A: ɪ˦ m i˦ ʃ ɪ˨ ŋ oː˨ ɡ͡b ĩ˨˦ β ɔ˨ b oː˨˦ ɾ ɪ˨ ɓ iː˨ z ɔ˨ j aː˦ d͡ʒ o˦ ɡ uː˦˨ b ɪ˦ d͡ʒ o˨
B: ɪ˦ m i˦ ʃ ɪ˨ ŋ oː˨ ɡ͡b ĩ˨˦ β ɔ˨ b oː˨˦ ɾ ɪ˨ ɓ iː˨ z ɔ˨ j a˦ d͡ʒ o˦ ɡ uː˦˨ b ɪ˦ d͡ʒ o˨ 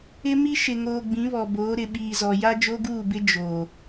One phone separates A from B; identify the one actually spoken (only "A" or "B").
B